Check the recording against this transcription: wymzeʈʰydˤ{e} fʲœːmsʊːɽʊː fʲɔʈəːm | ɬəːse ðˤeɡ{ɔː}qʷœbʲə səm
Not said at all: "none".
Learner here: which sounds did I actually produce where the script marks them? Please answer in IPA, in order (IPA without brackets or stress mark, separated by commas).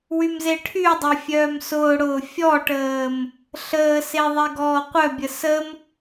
e, ɔː